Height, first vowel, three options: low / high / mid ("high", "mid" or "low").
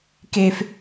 mid